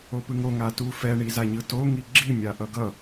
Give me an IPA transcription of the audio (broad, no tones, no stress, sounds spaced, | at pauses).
o p ɯ ŋ o ŋ a t u f ɛ ɳ i z a ɲ ɯ t o ŋ i ɡ͡ǁ i mʲ a ʔ ʌ ɡ ʌ